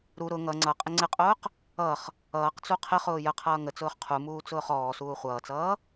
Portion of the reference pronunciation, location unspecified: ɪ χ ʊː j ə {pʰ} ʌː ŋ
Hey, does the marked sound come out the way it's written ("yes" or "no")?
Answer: no